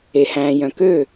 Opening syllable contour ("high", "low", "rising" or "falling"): low